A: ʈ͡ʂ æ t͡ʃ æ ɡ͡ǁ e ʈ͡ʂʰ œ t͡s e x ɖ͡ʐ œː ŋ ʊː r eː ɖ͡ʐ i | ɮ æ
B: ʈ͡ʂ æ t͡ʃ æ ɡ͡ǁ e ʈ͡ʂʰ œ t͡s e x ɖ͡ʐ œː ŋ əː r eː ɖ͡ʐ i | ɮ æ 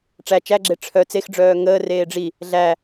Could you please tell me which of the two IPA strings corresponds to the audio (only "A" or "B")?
B